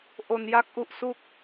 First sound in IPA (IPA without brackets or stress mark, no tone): ʔ